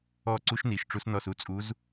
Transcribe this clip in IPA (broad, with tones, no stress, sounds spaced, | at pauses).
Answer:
ɔ˦˨ ǀ u˧˥ ʃ n i˨˩ ʃ ʈ͡ʂ u˧˥ s n ɔ˦˨ s u˧˥ t͡sʼ u˧˥ z